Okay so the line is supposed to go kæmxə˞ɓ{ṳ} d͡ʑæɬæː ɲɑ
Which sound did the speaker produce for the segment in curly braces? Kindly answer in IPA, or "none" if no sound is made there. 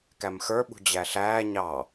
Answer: ṳ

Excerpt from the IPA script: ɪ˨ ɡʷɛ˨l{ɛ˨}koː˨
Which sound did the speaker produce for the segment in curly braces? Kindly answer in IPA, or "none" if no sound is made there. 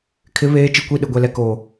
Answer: ɛ˨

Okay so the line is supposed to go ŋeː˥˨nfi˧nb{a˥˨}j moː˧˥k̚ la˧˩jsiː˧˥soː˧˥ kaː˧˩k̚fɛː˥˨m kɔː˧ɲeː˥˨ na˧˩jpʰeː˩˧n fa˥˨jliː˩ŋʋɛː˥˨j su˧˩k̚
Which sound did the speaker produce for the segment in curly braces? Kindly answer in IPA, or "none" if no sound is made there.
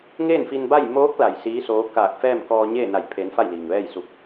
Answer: a˥˨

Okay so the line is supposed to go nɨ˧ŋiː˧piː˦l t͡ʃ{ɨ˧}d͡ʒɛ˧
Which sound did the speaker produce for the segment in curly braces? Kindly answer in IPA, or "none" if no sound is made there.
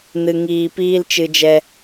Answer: ɨ˧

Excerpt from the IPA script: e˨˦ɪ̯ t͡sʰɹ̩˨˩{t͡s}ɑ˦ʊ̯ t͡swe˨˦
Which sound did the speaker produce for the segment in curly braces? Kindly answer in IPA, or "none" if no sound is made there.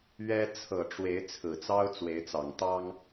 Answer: t͡s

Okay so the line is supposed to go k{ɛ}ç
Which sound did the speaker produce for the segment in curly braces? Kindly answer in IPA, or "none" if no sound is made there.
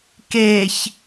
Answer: e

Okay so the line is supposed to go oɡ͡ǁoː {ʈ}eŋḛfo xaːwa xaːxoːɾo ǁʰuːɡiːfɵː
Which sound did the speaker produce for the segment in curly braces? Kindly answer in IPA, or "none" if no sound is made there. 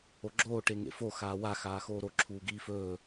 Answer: ʈ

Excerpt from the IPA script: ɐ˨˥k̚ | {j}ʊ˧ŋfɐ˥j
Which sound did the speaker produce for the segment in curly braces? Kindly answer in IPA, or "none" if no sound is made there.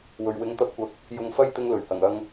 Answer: j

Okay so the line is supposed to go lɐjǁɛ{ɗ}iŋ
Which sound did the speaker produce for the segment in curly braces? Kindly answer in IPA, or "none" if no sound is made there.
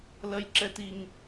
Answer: t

